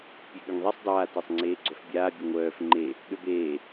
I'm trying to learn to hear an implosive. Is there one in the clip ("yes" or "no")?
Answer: yes